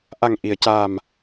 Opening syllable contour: low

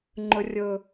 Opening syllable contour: high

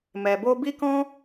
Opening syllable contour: low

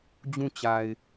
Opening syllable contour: falling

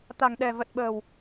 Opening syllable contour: low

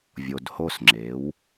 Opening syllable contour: low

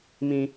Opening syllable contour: high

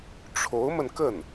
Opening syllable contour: rising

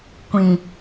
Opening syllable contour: low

